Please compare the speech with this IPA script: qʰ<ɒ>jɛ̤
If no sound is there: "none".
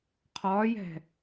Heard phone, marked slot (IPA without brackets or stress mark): ɒː